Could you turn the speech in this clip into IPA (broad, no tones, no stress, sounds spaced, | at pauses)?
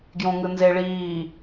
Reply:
ɡ j õ ŋ ɯ n z e ɭ iː